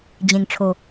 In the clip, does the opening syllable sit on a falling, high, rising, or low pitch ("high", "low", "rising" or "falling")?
low